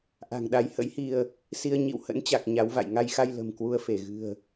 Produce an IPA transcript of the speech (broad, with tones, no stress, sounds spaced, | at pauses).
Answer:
ʔ a̤˨˩ ŋ ɗ a˨˦ j h ə̰˧˥ j h i˧ ə̯ | s i˧ ə̯ ɲ ḭ˧˨ w h ə̰˧˥ n t͡ɕ a˨˩ k̚ ɲ a˨˦ w v a̰˧˨ j ŋ a˧ j x a˧ j l ə̤˨˩ m k w u˧ ə̯ f e˧˩ ɣ ɨ̤˨˩ ə̯